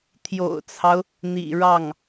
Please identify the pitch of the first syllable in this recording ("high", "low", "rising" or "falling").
low